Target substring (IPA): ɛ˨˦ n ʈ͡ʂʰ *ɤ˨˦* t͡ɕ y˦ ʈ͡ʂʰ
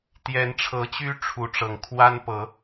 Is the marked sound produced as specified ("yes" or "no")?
yes